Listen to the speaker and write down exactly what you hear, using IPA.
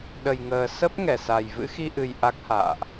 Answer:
ɗ ə˨˩ j ŋ əː˨˩ s ə˦˥ p̚ ŋ ɛ˧˩ s a˨˩ j v ɨ̰˧˥ x i˧ ʔ ɨ˨˩ j ʔ a˦˥ k̚ h a̰ː˧˨ ʔ

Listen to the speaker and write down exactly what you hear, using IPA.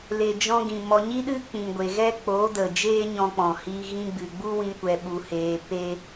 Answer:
l e˨ d͡ʒ ɔ̃˧ ɡ ĩ˨ m ɔ˨ ɲ i˦ ɗ ɨ˦ k͡p ĩ˨ ɡʷ e˨ ɣ ɛ˦ k͡p oː˨˦ d ə˨ d͡ʒ eː˦ ɲ ɔ̃˧ k͡p ɔ̃˨ h i˧ ɣ ĩ˧ ɡ͡b ɨ˨ ɡ͡b u˦ w ĩ˧ kʷ ɛ˧ ɓ u˧ h eː˧ p e˦

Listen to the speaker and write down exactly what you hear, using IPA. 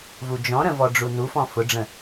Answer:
v u d͡ʒ ɔ̃ ɾ ə̃ v ɔ ɖ͡ʐ u n u f ɔ̃ f ʊ ɖ͡ʐ ə̃

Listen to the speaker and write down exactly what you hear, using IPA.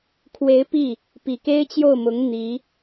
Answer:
kʰ w e˧˥ ɪ̯ p i˥˩ | p i˨˩ k e˥ ɪ̯ t͡ɕ j o˥˩ ʊ̯ m ʊ˧˥ ŋ n̪ i˧˥

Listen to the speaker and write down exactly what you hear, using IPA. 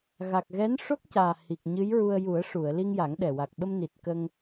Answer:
ɣ a˨˩ k̚ ɣ ɛ˧˥ n ʂ o˦˥ k̚ c aː˨˩ h i˨˩ k̚ ɲ ɨ˧˥ j ɹ u˧ ə̯ j u˨˩˦ ə̯ ʂ u˨˩˨ ə̯ l i˧ ŋ j a˨˩˦ ŋ ɗ ɛ˨˩ w a˨˩ k̚ ɓ ə˧ m n i˨˩ t̚ k ə˧ ŋ

